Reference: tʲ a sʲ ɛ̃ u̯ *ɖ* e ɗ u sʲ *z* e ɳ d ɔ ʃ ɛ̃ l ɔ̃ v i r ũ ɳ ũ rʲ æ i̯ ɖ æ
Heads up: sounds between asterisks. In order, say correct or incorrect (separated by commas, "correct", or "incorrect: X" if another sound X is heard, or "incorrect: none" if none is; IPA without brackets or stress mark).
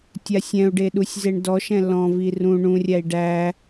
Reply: correct, correct